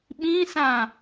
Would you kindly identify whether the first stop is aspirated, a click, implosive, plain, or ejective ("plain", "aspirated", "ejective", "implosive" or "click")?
implosive